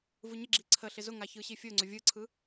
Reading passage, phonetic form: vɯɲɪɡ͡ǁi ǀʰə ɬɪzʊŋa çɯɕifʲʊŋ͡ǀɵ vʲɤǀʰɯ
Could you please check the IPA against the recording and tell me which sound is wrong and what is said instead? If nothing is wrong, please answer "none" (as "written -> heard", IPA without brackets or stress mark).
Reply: ɤ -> ɯ